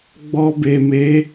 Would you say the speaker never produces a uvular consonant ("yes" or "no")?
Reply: yes